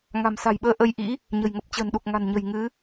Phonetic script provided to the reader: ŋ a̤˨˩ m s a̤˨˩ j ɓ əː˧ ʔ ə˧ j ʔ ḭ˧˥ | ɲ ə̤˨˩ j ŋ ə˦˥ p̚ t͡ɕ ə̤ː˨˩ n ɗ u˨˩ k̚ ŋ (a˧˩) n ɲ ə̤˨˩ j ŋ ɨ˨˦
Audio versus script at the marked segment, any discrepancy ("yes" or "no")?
yes